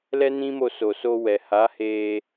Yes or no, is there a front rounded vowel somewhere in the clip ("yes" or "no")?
no